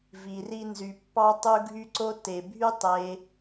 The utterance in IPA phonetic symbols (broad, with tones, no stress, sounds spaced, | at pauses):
v i˧ r i˦ n z y˧ pː ɑ˦ tˤ u˦ ɡʱ y˦ ǀ o˦ t e˨ bʱ y˦ tˤ e˧